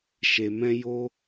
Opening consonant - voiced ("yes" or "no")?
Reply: no